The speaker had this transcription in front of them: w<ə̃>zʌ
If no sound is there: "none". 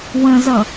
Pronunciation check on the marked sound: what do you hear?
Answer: ə̃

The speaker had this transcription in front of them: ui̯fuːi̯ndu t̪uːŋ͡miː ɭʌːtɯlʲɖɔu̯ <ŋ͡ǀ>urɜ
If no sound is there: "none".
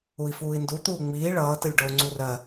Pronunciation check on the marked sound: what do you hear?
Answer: ŋ͡ǀ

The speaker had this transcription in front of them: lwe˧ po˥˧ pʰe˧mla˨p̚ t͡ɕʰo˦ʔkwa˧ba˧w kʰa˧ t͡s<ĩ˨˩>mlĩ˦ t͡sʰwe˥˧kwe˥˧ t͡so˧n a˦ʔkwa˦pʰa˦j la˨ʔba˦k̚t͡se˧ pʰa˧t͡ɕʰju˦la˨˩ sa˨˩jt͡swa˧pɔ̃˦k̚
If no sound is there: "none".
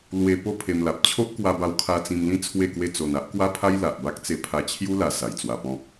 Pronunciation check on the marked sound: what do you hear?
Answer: ĩ˧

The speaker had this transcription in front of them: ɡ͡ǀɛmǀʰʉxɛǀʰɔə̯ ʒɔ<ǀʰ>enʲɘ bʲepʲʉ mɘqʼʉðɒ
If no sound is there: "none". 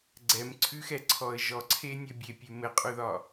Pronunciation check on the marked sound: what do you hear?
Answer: ǀʰ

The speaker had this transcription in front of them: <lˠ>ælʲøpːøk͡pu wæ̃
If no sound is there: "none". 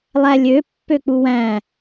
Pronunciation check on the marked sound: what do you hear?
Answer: lˠ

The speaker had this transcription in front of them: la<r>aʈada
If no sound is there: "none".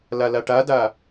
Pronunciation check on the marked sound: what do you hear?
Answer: l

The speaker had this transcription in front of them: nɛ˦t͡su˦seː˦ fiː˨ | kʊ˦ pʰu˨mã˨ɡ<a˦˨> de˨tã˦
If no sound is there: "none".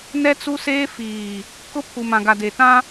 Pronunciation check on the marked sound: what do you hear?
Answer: a˨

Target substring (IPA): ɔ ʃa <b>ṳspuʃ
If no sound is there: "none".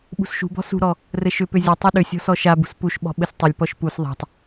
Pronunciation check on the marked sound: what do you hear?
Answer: b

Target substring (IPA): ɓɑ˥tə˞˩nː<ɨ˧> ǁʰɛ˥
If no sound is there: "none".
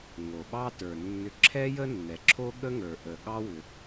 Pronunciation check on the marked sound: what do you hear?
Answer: ʏ˧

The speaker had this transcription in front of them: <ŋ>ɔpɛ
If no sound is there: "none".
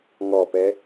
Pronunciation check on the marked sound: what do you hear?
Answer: ŋ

